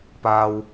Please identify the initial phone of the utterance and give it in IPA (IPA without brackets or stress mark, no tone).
p